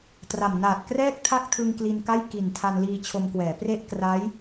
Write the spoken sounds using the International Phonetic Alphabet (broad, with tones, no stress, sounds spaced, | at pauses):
t r a˨˩ m n aː˨˩ t̚ k r ɛː˥˩ k̚ tʰ a˥˩ k̚ tʰ ɯ˧ ŋ k l i˧ n k a˥˩ j k i˨˩ n tʰ a˧ n l iː˧ t͡ɕʰ o˧ m k w ɛː˩˦ p r e˥˩ ʔ k r a˦˥ j